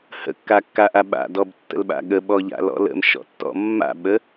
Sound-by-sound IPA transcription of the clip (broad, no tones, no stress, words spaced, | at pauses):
hə̰kːakːaʔa ɓa̰dɔbtːə̰lɓa̰ ɠəɓɔʎa̰lɔ̰ lə̰mʃɔ̰tːɔ̰ mːa̰ɓə